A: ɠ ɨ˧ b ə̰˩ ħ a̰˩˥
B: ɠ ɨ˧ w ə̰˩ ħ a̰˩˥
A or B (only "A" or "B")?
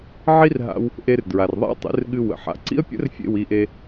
B